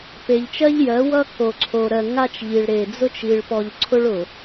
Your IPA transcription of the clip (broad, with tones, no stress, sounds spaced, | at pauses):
p e˨ ʎ t͡ʃ ɜ˦ ʎ j ɜ˨˦ w ʌ˦ k o˨ ǀʰ o˨ ɾ ɜ˨ ŋ a˦ t͡ʃ ʎ i˨ ɭ ɾ e˨ d͡z ʊ˦ t͡ʃ i˨ ɭ p ɔ˨ ʎ ǀʰ ʊ˦ ɭ ʊ˨